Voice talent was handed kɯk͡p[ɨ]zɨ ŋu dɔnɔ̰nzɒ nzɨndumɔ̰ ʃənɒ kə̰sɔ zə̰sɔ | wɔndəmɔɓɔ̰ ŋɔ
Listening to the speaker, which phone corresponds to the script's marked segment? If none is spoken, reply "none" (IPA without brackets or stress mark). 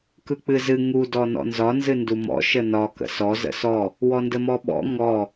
ɨ